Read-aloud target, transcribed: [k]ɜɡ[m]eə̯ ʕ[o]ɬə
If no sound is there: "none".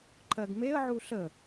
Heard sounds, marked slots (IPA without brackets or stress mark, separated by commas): ǃ, m, u